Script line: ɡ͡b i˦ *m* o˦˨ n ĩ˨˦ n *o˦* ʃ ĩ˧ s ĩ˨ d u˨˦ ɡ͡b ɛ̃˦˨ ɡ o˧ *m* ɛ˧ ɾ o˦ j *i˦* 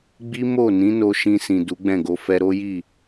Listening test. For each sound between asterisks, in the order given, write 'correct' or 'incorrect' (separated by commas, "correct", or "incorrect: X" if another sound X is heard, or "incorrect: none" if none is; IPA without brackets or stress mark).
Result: correct, incorrect: o˧, incorrect: f, incorrect: i˦˨